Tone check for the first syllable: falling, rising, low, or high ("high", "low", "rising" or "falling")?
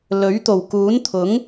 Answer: rising